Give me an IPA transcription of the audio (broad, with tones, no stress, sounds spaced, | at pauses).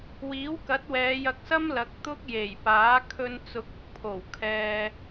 w iː˨˥ w k ɐ˨˥ t̚ w ɛː˨˧ j ɐ˧ k̚ s ɐ˥ m l ɐ˨˥ k̚ t̪ ʊ˥ k̚ j e˨˩ j p aː˨˥ kʰ ɵ˧ n t͡s ʊ˨˥ k̚ ʊ˨ k̚ pʰ o˨˩ w kʰ ɛː˧